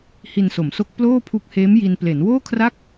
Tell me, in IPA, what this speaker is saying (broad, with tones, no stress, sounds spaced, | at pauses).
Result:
h i˧ n s o˩˦ m s o˦˥ k̚ p l oː˥˩ pʰ u˦˥ k̚ h eː˦˥ m j i˧ n p l e˩˦ n w oː˥˩ kʰ r a˥˩ k̚